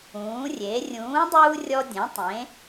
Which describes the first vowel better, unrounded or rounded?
rounded